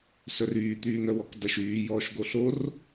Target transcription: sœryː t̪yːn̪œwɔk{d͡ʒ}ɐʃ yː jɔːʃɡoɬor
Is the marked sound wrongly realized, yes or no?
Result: yes